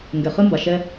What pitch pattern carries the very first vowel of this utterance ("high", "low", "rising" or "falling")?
low